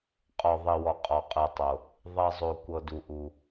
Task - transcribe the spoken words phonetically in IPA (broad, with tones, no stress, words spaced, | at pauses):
qʼɔ˩ðˤi˩wɔ˩ qʼɔ˩qʼɯ˩tˤo˩ | ðˤi˩zˤo˩ kʷɤ˩du˩ʔu˩